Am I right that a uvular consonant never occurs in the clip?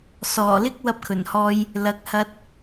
yes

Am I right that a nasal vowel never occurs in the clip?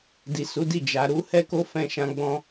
no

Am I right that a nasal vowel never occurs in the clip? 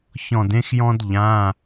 no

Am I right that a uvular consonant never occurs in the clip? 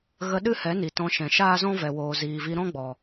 yes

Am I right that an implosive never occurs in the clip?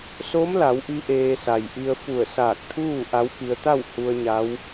yes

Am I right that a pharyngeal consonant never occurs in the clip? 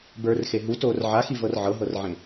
no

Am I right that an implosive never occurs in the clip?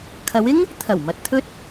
yes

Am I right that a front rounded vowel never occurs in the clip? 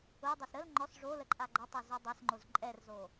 yes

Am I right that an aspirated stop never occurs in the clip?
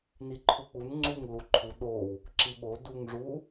no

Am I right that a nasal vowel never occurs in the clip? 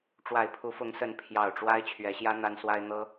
yes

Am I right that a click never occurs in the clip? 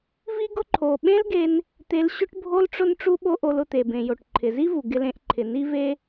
no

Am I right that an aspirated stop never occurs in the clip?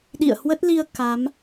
yes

